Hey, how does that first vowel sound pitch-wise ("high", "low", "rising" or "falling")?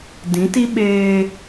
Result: rising